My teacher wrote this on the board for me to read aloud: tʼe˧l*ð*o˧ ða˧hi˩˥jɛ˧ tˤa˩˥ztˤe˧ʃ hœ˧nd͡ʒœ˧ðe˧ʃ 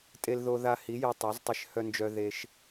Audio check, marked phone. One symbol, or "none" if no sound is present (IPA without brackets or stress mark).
ð